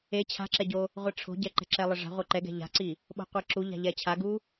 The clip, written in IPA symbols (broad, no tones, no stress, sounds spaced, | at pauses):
e t͡ɕʰ a̤ ǁ ɛ ɟ o | ʁʷ ɘ ʈ͡ʂʰ o̤ ɟ ɛ ǃ ɛ̤ ǁ ɛ lˠ ɘ ʐ a̤ ʁʷ ɛ ǃ ɛ ɡ ɛ̤ ʎ a̤ ǀ i | ɓ o̤ qʷ ɛ ǁ u ʎ a̤ ʎ ɛ t͡ɕʰ a ɡ u